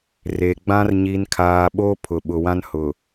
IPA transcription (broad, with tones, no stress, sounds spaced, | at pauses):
r e˨ ɡ͡b ã˦ r ɲ i˨ n kʰ aː˨ ɓ oː˦ pʰ ʊ˨ ɓ ʊ˨ w ã˦ n h ʊ˨